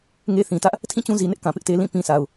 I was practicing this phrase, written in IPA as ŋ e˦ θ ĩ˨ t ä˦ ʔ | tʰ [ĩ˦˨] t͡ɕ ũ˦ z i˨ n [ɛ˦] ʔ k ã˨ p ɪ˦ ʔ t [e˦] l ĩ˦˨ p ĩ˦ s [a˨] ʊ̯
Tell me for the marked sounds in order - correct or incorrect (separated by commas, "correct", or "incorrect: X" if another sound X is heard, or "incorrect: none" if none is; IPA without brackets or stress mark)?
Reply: correct, incorrect: ɪ˦, correct, correct